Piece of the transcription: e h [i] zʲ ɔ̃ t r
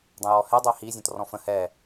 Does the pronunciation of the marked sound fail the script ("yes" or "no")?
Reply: no